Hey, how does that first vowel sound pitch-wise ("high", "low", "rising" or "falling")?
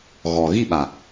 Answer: low